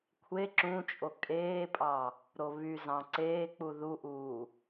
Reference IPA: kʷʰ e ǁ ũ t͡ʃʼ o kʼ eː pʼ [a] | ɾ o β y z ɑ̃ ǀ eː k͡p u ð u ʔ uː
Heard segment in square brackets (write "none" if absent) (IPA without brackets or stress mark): ɑ